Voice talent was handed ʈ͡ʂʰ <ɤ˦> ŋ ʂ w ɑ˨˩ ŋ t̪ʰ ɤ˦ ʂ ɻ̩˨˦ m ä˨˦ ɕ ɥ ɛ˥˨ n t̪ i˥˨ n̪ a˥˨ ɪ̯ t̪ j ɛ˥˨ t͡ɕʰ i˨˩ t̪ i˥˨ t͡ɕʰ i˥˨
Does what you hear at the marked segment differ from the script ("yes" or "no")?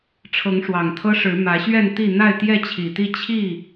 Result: yes